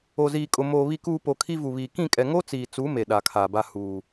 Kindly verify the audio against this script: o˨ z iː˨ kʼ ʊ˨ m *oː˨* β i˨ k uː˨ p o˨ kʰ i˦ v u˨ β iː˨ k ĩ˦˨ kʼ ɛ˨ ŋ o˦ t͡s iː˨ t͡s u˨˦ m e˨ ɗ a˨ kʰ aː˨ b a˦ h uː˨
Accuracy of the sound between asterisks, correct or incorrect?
correct